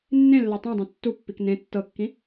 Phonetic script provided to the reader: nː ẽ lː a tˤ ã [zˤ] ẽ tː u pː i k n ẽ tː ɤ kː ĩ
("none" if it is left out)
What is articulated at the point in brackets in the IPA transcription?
dˤ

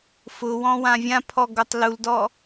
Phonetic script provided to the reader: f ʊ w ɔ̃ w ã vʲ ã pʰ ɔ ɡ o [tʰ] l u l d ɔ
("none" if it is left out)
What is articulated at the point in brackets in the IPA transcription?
tˤ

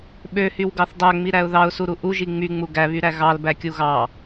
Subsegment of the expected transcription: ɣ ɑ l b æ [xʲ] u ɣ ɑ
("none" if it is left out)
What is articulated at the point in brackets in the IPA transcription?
kʲ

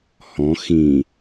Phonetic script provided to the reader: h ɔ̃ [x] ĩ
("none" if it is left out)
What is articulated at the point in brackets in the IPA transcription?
x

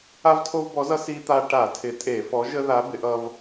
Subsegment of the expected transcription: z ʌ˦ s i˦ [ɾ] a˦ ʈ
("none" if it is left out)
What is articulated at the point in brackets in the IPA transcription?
t̪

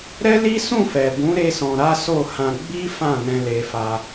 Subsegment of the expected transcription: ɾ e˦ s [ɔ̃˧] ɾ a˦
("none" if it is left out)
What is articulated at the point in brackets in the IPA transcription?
ɔ̃˧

